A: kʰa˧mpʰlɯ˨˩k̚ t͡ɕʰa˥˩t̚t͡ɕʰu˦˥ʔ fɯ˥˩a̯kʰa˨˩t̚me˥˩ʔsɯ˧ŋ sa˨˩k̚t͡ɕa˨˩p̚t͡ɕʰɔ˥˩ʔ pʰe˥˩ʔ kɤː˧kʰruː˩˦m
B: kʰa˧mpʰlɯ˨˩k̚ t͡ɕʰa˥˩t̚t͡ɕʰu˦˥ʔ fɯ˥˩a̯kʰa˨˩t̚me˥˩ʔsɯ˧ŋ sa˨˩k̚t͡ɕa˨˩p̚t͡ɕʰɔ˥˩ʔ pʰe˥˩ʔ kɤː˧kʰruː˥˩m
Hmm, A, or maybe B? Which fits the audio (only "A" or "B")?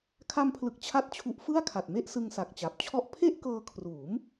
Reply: A